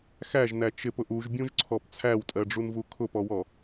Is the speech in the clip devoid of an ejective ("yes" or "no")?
no